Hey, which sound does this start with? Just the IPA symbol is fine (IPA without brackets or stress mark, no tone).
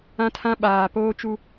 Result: ã